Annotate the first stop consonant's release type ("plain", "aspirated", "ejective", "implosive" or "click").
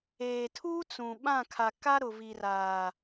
aspirated